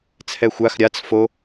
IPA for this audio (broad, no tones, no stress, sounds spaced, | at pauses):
t͡sʰ ɛ xʷ a x ɾʲ a t͡s f o